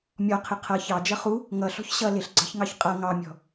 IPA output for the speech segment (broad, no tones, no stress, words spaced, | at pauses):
mʲɔqʰɪ qʰʌ çɑd͡ʒʌ χu | ŋʌɬɔ̤ç ɕʌ lɪɬɡ͡ǀɑ̤çŋɑç qʼʌ ŋɑmʲɔ̤